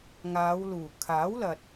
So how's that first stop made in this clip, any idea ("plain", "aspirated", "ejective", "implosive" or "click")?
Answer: aspirated